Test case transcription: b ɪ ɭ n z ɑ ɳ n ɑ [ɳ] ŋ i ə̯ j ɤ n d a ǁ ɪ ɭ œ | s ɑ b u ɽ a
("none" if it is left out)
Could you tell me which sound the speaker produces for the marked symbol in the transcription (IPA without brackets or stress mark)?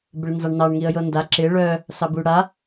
ɳ